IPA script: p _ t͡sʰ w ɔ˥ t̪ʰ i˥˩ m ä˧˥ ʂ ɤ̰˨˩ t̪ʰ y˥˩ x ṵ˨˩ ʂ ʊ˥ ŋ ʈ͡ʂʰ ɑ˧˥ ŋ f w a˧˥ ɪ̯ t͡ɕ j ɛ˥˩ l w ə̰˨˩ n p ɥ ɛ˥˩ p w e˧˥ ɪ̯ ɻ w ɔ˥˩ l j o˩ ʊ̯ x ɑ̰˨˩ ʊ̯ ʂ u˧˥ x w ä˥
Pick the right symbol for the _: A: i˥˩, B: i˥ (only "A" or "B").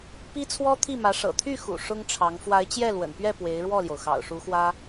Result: B